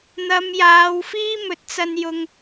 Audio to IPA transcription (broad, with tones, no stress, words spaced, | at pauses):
n̪ɐ˨˧mjaː˨˧wfiː˥ mɵ˨t̚t͡sɐ˧n jʊ˧ŋ